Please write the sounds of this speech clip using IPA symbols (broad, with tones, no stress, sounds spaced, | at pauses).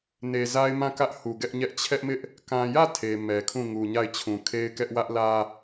n e˨ z a˦ ɪ̯ m ã˦˨ k ä˦ ʔ h u˨ ɡ ɛ˦ ʔ ɲ ɛ˦ ʔ t͡ɕʰ ɛ˦ ʔ m ɪ˦ ʔ | k ã˨ j ä˦˨ tʰ e˨ m ɛ˨ kʰ ũ˦˨ ŋ u˨ ɲ a˦˨ ɪ̯ t͡ɕʰ ũ˨ kʰ e˦ ɪ̯ k ɛ˦ ʔ w ä˦ ʔ l ä˦